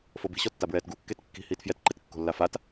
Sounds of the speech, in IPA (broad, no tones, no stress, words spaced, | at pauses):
fobi̤ɕɔtːa bɹɛːtɡu kːetkːi̤ hiːtfjɛtǃet kːo̤lːafat